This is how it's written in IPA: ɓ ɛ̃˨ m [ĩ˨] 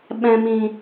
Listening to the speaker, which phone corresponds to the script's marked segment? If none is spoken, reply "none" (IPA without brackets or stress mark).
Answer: ĩ˨